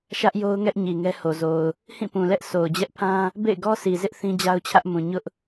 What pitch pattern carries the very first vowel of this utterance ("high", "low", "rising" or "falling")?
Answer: high